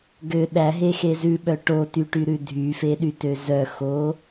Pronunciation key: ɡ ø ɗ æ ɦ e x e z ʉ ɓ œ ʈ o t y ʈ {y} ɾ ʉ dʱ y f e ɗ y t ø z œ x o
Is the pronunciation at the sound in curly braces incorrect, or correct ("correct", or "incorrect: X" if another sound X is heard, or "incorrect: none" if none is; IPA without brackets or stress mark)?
correct